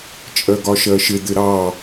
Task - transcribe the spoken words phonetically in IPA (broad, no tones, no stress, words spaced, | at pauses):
t͡ʃʼɜɡɒʃɜʃɪ d̪ɪɾɑ